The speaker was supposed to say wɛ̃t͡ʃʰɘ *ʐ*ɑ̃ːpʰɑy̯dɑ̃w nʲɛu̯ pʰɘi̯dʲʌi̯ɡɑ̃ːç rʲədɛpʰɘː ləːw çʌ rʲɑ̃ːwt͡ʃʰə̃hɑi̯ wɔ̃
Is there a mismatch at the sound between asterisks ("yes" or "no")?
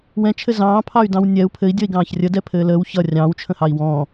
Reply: yes